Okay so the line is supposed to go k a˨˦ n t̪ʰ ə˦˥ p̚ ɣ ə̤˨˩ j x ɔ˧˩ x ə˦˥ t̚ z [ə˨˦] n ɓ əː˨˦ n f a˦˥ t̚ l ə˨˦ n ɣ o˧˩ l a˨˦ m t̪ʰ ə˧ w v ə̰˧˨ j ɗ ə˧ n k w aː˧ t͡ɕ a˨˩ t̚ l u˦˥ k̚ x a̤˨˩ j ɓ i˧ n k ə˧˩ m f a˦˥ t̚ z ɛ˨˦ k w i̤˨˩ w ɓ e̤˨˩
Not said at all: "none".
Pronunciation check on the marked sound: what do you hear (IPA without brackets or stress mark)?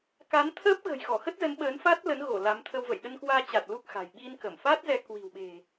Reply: ə˨˦